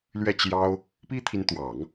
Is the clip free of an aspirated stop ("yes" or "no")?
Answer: no